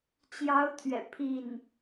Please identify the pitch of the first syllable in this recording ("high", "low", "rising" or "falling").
rising